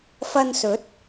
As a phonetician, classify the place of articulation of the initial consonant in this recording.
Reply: labial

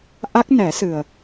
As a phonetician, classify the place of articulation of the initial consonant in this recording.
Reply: glottal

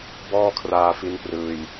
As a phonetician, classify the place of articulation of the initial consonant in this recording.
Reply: labial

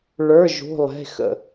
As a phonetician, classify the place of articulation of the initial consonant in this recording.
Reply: retroflex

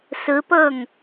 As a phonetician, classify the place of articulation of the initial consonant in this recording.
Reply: alveolar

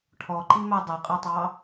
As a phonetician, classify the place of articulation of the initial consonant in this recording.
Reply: retroflex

